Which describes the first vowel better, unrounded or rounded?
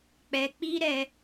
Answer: unrounded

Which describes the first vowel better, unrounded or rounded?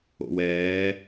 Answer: rounded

